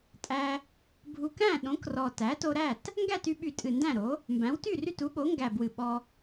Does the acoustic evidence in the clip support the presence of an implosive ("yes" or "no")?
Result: yes